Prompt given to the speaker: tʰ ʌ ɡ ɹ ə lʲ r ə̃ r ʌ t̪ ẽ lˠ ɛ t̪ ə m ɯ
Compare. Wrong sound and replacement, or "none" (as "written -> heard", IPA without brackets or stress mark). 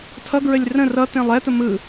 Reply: none